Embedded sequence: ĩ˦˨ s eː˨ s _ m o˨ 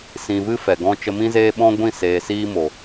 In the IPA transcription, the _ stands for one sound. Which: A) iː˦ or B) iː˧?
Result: A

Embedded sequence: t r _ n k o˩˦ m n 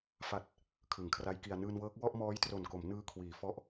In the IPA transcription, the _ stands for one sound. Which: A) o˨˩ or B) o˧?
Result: A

